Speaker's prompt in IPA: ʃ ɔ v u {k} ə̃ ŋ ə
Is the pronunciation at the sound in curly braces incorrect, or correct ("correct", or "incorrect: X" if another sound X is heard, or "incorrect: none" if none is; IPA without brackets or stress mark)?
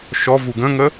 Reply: incorrect: ɡ